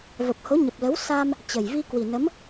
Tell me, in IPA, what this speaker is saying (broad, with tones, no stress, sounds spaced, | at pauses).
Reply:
v ə˨˩ p̚ h o˨˦ ɲ ə˨˩ p̚ l ə˨˦ w s a˧ m | t͡ɕ ə˨˩ j v i˧ k w i˨˩ n ə˨˦ m